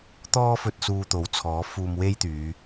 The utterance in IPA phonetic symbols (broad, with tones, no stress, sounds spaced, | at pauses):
t̪ ɔː˥ f ɵ˧ t̚ s uː˧ t̪ o˨˥ w t͡sʰ ɔː˨˥ f uː˧ m w e˥ j t̪ yː˨˧